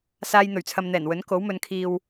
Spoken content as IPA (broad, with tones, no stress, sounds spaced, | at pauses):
s aː˧ j n̪ ɵ˨˩ ɥ t͡sʰ ɐ˨ m n̪ ɛː˨˩ n w ɵ˨˥ n k o˨˥ w m ɵ˨˧ n kʰ iː˨ w